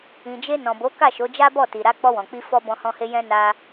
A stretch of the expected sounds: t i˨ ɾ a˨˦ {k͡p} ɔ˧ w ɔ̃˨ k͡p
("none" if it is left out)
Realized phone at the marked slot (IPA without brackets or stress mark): k͡p